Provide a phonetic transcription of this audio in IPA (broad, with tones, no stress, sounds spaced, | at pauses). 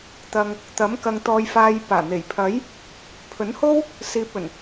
t̪ ɐ˨ ŋ | t̪ ɐ˨˥ m k ɐ˨ ŋ t̪ ɔː˨ j f aː˨ j p aː˨˩ n̪ e˨˩ j pʰ ɐ˨˥ j | pʰ ɵ˨˥ n h o˥ w | s iː˨ p̚ ɵ˨˩ n